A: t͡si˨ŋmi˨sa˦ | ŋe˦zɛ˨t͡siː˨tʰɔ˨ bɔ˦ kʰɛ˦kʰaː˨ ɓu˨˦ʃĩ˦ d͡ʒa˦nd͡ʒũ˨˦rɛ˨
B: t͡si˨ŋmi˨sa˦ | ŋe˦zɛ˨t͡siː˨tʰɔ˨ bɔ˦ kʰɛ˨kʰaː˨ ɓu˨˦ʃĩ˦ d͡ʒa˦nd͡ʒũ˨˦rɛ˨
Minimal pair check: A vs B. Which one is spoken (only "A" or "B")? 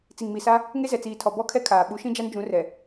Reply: A